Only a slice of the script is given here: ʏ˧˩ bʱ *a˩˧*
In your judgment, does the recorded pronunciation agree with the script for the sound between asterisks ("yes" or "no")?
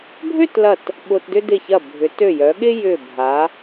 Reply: yes